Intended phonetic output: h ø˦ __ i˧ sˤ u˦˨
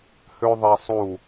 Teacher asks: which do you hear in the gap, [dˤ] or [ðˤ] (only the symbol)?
ðˤ